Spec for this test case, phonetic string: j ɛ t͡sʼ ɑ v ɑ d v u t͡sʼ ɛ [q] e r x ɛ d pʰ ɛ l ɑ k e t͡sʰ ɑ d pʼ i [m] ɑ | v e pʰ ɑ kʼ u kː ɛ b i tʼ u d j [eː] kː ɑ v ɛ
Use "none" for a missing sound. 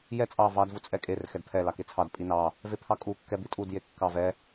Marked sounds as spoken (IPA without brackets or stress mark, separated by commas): kʼ, n, e